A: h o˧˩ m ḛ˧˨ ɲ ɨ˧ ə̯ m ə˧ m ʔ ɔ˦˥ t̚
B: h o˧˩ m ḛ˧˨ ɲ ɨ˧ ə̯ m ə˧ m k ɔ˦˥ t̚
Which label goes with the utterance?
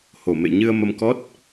B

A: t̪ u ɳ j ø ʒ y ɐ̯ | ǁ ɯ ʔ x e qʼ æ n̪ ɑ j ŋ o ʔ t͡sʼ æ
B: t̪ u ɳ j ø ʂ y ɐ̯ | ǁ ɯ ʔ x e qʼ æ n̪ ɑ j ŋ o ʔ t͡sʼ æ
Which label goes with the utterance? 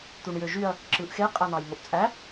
A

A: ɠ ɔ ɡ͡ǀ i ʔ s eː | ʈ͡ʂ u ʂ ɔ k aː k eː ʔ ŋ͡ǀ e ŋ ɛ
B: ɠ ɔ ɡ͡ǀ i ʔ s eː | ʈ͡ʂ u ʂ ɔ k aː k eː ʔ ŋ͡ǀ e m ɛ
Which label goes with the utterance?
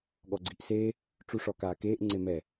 B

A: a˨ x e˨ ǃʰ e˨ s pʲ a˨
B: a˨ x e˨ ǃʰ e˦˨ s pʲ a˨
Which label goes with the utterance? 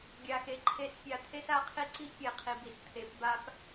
A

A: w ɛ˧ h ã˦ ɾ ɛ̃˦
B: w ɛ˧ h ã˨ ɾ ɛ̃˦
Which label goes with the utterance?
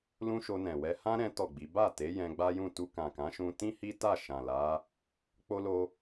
A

